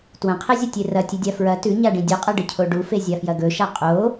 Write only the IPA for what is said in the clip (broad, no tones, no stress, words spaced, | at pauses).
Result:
twɐ̃qʰezʲɐtʲe rɐtʲɨdʲa fɹɐ tʉɲaɖĩ dʲɵqʼɐɖɨcʰo ɖufezʲafjɐ ɡɵʃa qʼo